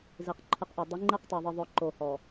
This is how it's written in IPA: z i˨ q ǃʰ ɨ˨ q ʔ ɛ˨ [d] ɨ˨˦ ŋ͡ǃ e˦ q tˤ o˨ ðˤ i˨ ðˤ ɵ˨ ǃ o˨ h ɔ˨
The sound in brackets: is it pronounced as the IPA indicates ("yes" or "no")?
no